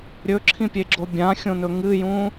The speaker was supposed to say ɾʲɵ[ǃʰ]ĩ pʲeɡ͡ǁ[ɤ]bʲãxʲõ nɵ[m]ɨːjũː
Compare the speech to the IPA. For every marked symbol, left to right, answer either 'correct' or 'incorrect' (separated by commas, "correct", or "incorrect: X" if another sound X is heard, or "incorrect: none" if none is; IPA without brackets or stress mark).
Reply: incorrect: ǁʰ, incorrect: o, incorrect: ŋ